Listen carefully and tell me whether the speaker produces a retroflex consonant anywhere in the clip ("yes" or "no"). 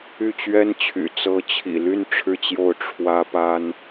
yes